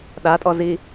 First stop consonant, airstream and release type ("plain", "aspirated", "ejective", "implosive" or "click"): implosive